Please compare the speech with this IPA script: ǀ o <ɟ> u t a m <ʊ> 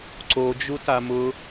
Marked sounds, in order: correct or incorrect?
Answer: incorrect, correct

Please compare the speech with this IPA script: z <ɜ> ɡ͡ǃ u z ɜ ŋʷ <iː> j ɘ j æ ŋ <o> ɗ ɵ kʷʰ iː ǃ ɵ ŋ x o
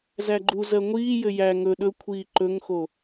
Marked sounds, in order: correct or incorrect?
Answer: incorrect, correct, incorrect

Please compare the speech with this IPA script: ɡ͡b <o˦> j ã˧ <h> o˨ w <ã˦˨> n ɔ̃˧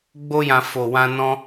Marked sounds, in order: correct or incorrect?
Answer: correct, incorrect, incorrect

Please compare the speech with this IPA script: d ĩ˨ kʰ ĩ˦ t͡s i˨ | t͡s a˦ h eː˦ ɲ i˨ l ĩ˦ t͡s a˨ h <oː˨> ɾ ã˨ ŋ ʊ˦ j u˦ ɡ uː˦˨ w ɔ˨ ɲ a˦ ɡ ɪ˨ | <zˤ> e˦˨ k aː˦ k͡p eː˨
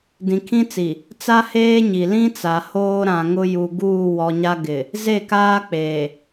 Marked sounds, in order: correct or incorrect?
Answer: incorrect, incorrect

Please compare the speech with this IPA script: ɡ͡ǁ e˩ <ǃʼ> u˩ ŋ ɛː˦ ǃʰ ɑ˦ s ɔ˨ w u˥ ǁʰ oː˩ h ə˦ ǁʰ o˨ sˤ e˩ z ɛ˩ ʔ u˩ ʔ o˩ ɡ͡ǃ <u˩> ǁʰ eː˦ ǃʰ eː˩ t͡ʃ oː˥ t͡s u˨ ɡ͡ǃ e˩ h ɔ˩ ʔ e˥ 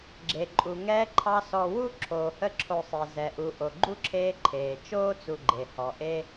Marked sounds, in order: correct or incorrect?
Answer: correct, incorrect

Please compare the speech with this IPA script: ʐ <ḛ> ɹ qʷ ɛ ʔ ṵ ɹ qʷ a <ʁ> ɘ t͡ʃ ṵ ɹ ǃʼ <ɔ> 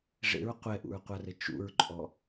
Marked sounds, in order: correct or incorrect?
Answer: correct, incorrect, correct

